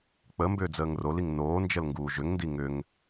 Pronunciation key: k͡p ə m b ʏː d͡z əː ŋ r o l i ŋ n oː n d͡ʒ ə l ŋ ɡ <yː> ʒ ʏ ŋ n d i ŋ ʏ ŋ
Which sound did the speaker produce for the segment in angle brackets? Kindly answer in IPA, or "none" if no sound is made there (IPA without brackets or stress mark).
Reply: uː